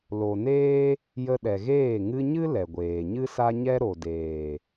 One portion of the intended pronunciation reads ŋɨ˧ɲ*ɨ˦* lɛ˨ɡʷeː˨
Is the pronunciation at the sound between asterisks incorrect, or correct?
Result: correct